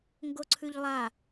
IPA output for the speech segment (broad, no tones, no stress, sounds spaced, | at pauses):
ŋ ɡ o ǀʰ ʉ ʎ lˠ a